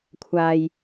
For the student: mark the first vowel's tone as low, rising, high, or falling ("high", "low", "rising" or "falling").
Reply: low